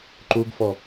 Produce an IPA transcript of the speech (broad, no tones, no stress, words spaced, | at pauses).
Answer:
ǃuɡfɔ